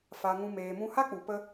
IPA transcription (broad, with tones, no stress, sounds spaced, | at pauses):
f a˧ ŋ ũ˧ m eː˨ m ũ˧ h a˦ k͡p u˨ p ə˦